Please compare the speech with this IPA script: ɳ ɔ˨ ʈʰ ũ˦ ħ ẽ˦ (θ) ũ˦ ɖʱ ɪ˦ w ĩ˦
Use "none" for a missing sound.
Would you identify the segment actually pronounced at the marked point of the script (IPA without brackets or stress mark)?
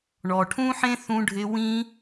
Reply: θ